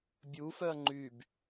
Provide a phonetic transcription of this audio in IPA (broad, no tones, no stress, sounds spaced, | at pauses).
bʲ u f œ ɐ̯ ŋ͡ǃ y b